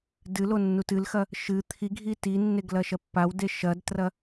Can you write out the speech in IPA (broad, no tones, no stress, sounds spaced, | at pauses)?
d ɨ l o nː u t ɨ l x ɐ | ʃ ɨ t̪ʰ i ɡʱ i t i nː e ɡ l ɐ ʃ ɐ pː a w d e ʃ ɐ d t r ɐ